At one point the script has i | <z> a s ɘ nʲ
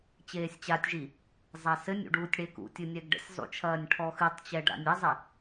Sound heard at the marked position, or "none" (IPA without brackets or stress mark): zˤ